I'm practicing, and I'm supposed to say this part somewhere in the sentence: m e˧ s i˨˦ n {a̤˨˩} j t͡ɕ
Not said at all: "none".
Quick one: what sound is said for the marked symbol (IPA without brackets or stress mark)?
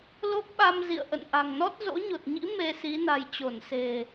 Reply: a̤˨˩